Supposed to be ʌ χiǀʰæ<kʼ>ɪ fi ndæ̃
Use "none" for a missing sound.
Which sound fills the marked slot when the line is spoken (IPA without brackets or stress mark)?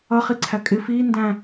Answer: kʼ